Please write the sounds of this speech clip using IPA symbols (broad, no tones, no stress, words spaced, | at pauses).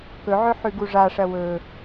kɵʕɵ ħʉɡuʐaʂɐ wɵ